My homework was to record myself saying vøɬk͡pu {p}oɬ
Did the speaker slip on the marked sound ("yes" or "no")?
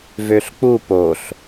no